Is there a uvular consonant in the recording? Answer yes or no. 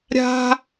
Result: no